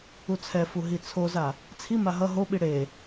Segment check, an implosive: present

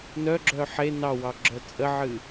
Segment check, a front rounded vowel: present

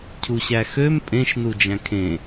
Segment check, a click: absent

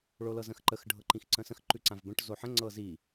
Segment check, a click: present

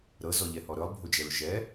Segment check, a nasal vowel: absent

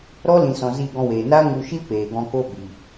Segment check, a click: absent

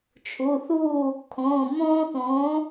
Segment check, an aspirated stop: present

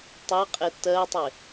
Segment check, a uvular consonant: present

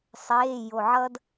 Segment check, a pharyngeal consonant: present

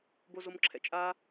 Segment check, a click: present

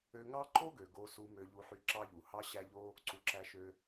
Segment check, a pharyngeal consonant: present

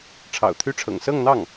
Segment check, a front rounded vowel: present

